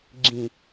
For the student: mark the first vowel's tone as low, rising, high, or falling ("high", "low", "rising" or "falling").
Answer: low